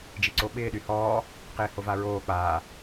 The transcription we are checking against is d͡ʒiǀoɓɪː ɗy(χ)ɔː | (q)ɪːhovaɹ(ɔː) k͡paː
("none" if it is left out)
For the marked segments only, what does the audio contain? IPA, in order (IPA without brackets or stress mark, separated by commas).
h, q, oː